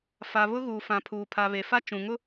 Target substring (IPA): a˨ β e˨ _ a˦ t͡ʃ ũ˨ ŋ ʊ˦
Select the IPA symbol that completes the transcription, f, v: f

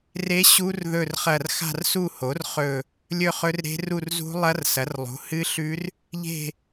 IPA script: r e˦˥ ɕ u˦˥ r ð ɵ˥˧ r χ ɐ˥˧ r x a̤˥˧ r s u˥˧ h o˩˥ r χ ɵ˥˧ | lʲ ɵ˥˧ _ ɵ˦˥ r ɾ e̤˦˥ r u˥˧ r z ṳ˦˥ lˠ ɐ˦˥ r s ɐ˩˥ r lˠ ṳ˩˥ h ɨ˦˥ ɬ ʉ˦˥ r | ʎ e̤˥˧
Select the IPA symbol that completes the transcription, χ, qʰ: χ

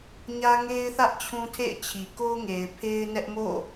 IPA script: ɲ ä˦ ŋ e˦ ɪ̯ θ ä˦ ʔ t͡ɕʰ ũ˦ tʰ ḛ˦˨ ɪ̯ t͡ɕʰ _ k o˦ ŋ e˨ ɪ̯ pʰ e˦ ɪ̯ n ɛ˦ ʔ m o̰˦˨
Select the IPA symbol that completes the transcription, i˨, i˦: i˨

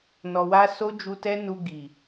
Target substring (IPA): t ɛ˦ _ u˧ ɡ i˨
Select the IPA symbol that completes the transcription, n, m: n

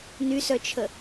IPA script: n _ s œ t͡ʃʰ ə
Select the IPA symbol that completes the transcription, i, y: y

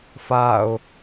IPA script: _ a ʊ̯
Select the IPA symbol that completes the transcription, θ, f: f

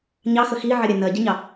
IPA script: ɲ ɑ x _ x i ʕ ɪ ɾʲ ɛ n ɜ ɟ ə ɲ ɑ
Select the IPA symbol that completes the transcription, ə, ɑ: ə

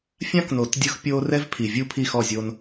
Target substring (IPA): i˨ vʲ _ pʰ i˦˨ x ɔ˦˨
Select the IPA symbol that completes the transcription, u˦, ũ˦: u˦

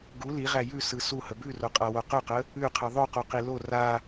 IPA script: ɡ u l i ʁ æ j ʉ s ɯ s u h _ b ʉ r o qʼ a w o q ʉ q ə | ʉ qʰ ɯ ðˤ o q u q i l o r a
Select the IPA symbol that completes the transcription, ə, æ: ə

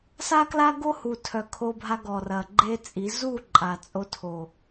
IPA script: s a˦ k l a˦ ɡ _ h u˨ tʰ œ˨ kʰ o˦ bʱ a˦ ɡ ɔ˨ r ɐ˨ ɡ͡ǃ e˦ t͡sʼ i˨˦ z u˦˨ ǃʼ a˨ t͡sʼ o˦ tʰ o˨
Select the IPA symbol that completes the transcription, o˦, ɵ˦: o˦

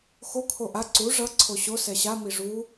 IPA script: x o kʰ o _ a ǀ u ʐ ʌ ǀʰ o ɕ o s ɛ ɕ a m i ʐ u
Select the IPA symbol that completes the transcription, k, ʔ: ʔ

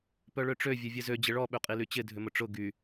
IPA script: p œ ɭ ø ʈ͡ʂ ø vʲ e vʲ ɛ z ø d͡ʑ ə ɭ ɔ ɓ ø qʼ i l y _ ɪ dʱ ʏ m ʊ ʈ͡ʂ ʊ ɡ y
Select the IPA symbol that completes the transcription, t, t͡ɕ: t͡ɕ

